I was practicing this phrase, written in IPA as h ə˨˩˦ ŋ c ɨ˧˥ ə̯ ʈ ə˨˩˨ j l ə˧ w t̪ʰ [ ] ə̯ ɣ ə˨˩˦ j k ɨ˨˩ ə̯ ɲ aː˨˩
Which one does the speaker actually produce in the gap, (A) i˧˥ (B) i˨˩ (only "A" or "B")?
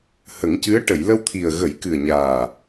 B